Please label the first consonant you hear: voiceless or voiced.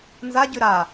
voiced